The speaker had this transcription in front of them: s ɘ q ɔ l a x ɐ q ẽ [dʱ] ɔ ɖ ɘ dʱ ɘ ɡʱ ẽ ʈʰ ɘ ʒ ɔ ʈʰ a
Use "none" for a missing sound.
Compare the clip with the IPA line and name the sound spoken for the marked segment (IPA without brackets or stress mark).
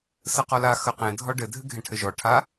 dʱ